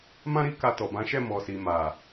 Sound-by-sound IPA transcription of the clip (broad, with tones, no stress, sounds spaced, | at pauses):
m ã˦ ɾ i˦ k a˧ t ɔ˨ b ã˨˦ ʃ ɛ˦˨ m ɔ˨ s i˨ m a˨